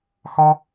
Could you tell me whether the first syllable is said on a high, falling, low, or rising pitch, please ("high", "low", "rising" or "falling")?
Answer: high